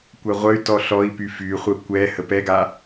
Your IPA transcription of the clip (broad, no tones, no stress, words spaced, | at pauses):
kʷɛʁʷəy̯tɔ ɬɔi̯py fyχʷə kʷɛ həpɛɡa